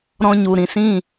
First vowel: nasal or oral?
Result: nasal